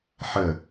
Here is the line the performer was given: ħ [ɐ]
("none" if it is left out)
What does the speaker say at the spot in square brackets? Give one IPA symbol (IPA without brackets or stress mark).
ə